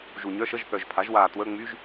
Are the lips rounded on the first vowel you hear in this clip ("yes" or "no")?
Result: yes